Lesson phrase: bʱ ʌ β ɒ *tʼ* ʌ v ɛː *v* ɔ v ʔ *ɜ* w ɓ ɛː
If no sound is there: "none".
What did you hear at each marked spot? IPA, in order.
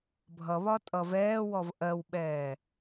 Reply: tʼ, w, ɜ

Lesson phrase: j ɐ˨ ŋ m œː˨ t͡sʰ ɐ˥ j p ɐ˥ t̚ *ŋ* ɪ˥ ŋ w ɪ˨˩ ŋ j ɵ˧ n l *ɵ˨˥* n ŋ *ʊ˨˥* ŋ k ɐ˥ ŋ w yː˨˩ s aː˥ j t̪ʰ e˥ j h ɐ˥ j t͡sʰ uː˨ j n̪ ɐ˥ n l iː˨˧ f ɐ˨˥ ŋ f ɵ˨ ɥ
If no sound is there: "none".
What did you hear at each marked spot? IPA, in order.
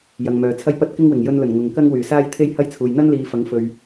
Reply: k, ɵ˨˩, ʊ˨

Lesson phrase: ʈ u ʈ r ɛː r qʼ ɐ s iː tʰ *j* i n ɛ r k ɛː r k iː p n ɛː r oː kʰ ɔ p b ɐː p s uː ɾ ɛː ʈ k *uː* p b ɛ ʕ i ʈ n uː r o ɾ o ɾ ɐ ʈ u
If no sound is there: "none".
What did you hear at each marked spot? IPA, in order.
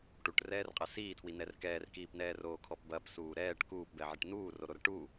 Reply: w, uː

